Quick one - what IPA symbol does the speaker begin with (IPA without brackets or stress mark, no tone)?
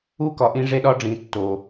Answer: u